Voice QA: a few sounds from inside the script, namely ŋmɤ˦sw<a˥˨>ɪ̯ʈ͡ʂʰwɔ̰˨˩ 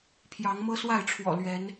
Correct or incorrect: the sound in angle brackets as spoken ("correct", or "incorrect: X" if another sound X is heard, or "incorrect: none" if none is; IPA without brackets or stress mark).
correct